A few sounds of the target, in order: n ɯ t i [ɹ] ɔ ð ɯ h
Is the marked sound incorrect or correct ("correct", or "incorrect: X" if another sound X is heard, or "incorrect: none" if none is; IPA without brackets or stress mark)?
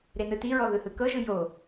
correct